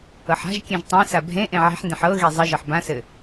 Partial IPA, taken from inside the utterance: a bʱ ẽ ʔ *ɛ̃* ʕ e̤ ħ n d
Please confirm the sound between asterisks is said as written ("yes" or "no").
no